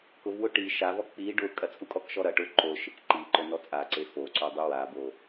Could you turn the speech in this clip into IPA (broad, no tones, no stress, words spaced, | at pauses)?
kʊvwʊ ʈi ʃavɔ k͡pi ɖʊ kʼɐt͡sʼukʼɔkʃɔ ɾɐ ʈʊ ǃo ʃekǃiǃʊ nɔt͡sʼaǀe foǀo dˤuwabo